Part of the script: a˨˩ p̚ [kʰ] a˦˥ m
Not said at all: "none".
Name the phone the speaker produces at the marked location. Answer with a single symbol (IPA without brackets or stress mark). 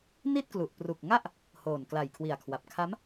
kʰ